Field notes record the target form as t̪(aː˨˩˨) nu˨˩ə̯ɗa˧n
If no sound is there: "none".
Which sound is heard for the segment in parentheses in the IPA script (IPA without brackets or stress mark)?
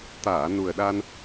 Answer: aː˨˩˨